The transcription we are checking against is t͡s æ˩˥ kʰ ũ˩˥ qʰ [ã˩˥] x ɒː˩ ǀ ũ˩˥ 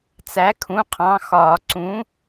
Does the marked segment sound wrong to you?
yes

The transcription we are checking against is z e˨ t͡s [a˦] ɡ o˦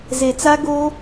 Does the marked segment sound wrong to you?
no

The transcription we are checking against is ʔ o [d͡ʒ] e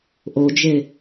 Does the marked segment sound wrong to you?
no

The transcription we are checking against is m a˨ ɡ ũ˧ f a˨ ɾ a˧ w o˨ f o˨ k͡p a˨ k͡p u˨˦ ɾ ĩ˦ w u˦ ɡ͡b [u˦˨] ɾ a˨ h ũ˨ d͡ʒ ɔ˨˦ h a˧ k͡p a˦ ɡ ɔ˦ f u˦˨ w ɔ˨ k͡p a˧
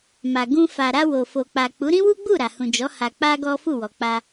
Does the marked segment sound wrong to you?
no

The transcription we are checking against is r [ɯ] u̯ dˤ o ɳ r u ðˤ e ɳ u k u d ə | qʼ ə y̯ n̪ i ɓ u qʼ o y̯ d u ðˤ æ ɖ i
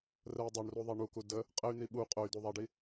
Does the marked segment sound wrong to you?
yes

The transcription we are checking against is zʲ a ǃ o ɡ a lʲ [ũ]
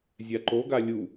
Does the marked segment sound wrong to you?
yes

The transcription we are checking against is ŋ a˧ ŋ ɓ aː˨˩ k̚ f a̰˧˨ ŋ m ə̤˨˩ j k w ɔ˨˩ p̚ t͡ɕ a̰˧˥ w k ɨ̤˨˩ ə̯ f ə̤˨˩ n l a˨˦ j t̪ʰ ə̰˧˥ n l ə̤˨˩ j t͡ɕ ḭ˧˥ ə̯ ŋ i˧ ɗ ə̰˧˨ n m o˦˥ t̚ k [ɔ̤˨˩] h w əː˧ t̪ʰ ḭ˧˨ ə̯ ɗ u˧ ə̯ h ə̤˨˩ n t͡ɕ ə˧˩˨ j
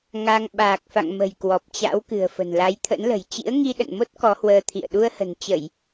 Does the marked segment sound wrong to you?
yes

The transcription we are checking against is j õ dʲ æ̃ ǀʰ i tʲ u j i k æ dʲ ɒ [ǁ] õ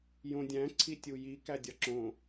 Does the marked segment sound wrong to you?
no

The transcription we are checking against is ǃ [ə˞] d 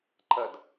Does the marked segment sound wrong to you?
yes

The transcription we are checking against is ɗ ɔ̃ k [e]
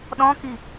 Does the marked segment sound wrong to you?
yes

